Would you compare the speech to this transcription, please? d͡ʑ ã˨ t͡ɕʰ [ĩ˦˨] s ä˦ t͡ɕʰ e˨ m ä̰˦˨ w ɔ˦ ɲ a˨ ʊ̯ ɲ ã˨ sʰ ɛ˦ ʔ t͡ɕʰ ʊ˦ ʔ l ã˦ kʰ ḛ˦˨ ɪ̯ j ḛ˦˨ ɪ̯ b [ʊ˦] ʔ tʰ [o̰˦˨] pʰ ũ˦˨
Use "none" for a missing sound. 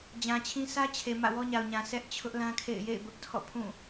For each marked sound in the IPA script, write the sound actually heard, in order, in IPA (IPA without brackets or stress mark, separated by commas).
ĩ˦, ʊ˦, ɔ̰˦˨